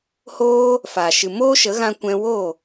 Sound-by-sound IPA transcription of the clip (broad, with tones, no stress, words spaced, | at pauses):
hoː˦ | faː˨ ʃɨ˨moː˦ʃə˨˦ ɣã˧kʷɛ̃˧ wo˦˨